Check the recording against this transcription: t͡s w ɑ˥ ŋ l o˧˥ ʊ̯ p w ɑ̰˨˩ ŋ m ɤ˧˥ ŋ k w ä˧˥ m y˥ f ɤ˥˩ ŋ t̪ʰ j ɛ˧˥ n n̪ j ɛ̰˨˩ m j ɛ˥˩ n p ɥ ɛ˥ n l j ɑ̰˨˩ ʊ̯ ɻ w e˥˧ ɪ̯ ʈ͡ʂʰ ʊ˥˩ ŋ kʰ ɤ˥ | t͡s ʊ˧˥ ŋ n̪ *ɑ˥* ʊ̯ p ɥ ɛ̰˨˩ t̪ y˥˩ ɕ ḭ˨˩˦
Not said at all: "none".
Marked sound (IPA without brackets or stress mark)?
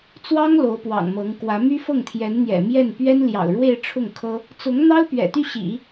ɑ˥